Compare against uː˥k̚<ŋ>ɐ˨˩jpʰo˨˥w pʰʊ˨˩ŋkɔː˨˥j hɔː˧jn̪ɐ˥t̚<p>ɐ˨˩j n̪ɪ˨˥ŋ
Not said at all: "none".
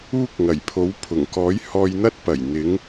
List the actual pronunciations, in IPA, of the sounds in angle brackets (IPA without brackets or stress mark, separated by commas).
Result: ŋ, p